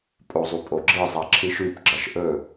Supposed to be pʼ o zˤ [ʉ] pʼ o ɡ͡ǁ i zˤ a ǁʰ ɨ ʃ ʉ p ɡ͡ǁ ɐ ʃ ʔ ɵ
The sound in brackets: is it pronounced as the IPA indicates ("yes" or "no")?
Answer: no